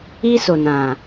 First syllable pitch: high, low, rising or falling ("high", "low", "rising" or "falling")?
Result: high